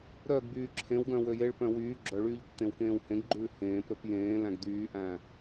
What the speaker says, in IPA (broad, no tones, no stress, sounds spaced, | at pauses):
ɾ œ ɡ b yː ǁʰ ẽ w ɡ œ̃ w ø j e ɭ p œ̃ w yː ɡ͡ǁ œ ɭ yː ʎ tː ẽ w k ẽː w h ẽ ɡ ɡ͡ǃ ʉː h ẽː p ɾ ɵ p j ẽː l æ̃ ɡ d̪ yː ʔ æ̃